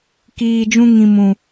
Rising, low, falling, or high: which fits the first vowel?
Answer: low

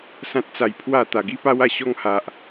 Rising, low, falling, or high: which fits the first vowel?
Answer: high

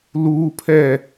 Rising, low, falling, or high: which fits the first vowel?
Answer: high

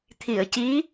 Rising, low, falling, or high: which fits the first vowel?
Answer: low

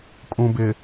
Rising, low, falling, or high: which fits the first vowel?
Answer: low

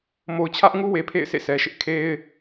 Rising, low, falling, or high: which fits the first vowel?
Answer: low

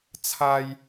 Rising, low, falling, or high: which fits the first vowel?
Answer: high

